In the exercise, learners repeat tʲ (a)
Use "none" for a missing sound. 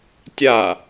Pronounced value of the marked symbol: a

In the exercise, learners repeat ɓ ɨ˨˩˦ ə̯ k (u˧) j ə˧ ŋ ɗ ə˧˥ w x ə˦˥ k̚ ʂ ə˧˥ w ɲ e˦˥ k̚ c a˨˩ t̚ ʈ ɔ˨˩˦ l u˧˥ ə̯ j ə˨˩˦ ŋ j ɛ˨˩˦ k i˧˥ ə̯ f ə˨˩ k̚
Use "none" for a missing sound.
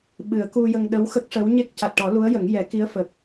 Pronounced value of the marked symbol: u˧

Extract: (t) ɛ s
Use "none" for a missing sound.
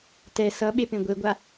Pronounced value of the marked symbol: t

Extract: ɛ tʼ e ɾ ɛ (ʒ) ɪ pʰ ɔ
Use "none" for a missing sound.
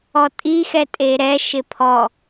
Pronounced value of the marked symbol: ʃ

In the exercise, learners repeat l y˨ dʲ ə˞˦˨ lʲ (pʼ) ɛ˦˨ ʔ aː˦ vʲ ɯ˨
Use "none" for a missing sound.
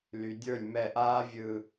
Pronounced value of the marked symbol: m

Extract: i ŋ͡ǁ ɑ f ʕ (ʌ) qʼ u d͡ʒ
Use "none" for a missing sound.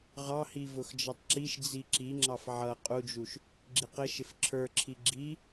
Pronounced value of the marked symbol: ʌ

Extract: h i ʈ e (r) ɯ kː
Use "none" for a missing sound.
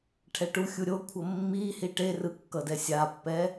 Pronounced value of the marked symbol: r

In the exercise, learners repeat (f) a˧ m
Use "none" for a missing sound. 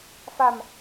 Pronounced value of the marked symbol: f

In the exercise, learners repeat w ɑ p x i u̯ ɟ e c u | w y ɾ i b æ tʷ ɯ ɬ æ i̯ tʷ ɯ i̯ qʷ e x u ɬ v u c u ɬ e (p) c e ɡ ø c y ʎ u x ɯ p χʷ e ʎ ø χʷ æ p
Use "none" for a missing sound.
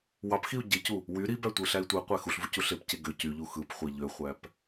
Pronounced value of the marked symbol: p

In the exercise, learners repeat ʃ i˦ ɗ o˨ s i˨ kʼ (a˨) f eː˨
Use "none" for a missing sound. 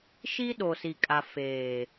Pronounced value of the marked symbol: a˨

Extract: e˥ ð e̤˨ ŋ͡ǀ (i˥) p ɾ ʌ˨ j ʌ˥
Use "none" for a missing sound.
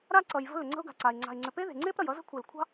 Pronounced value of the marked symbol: e˥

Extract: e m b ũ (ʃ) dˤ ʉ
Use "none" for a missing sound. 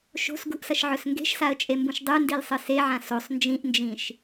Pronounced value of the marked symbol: ʃ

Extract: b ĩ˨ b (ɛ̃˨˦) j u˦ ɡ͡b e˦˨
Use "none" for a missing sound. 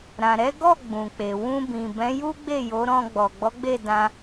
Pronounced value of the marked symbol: ɛ̃˨˦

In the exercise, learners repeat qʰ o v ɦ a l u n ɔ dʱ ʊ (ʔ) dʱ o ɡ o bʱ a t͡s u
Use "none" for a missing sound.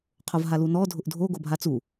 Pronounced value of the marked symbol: ʔ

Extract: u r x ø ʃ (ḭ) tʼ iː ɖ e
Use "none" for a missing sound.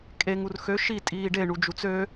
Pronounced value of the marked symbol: i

